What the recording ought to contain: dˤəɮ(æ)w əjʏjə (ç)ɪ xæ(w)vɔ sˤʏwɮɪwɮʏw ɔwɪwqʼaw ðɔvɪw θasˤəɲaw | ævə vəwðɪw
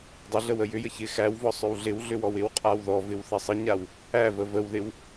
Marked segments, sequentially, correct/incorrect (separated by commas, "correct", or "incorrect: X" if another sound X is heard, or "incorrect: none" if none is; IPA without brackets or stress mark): incorrect: ə, correct, correct